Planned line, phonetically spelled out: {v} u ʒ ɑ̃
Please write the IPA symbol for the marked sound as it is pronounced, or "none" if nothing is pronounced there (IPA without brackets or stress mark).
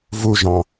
v